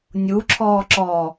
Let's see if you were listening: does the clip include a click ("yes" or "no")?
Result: yes